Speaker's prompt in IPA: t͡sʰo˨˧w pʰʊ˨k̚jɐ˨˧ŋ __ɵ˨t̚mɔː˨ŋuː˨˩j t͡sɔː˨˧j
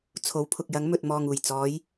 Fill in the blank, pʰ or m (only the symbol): m